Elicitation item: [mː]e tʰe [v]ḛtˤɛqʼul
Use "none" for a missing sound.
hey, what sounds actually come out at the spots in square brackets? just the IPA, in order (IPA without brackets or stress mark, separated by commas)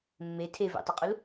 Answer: mː, v